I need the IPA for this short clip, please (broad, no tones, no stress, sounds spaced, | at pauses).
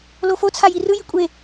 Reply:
l o f o t͡sʰ a j i r ɯ j i kʷʼ e